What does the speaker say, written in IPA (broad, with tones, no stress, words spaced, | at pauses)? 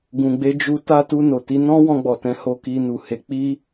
ɡũ˨ɡ͡be˧d͡ʒu˧ ta˧ tu˧no˨ti˧nɔ̃˦ wɔ̃˧ɡ͡bɔ˨tɛ̃˨˦ ho˧ki˧nu˨he˨˦ k͡pi˦